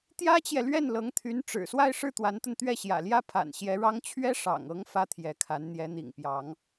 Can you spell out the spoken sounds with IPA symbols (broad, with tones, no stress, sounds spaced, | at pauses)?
t̪ j ä˥ t͡ɕ j ɛ˨ l ɥ ɛ˥˩ n l ɤ˧˥ ŋ t̪ʰ y˧˥ n ʈ͡ʂ ɻ̩˨˩ s w a˥˧ ɪ̯ ʂ ɻ̩˥˩ t̪ w a˧˥ n t̪ ə˧ n t̪ ɥ ɛ˥˩ ɕ j ä̰˨˩ l j ä˥ pʰ a̰˨˩ n ɕ j ɛ˧˥ ɻ ɑ˥ ŋ t͡ɕʰ ɥ ɛ˥ ʂ ɑ̰˨˩ ŋ ɤ˧˥ ŋ f ä˥ t̪ʰ j ɛ˧˥ kʰ a˧˥ n n̪ j ɛ˧˥ n̪ ḭ˨˩ ŋ p j ɑ˧˥ ŋ